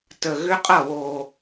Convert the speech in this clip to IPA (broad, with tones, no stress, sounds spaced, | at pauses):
t ə˨˩ ɣ ʏ˦˥ qʼ ʌ˥˩ w oː˨˩